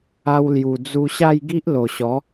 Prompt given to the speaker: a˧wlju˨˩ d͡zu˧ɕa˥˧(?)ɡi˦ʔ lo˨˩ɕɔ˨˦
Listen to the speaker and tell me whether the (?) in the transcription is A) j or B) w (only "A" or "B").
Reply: A